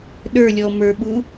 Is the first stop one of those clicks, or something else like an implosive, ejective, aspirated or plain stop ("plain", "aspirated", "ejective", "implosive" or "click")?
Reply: implosive